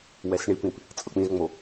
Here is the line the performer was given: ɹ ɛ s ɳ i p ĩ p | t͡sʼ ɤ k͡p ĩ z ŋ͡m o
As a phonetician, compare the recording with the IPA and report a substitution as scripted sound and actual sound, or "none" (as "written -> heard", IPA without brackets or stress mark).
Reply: ɹ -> w